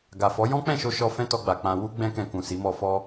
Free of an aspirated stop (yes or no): yes